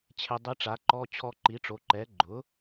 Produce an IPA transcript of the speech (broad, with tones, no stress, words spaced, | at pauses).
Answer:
t͡ɕʰe˧dˤi˧˥ʈ͡ʂa˩˥ǃɔ˧˥˧ t͡ɕʰɔ˧ǃi˩˥ʈ͡ʂo˩˥ ǃɛ˩˥ɡ͡ǃʊ˩˥